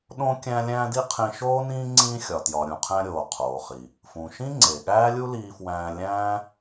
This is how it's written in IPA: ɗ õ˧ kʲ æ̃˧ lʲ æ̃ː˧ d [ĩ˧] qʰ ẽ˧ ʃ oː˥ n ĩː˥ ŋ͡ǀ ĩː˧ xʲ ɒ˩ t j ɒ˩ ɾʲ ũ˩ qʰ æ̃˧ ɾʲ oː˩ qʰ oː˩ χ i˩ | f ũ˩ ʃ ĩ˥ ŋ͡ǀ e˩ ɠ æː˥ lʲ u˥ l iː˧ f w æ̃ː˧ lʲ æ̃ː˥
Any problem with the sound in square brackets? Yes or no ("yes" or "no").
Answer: yes